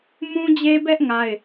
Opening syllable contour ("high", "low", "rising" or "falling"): high